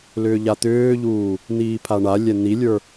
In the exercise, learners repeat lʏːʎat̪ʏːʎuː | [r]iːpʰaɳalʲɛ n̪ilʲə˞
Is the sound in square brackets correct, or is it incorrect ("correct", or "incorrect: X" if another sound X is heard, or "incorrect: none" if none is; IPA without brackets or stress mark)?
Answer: incorrect: n̪